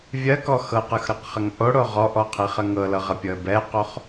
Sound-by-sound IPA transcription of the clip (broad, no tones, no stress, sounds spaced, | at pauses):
vʲ ɜ k ɔ x ɤ q ɯ x ɾ ɤ q χ ɐ ŋ ʔ o ɽ o ʁ ɔ ʔ ɔ qʰ i χ ɐ ŋ ɤ l ɤ ʁ ɐ pʲ ɤ ə̯ b ɛ q o χ